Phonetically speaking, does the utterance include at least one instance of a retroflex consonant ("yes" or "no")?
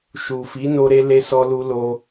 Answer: no